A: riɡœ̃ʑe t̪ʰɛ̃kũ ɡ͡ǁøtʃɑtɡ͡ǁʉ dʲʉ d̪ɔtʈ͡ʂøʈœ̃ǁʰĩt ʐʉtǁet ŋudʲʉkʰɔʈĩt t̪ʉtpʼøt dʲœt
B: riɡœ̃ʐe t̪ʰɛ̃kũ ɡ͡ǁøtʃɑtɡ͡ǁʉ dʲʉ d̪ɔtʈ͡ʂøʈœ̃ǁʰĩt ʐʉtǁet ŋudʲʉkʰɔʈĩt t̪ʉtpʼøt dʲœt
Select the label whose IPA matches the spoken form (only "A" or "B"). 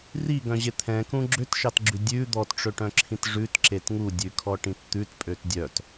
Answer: A